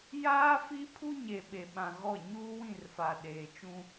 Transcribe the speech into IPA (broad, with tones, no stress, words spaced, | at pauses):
jaː˦fi˦ pʰu˦ɲe˨ ɓe˨ɓã˨ ɣɔ˦˨ ɲuː˦wĩ˦˨rfa˨ ɗeː˨t͡ʃũ˦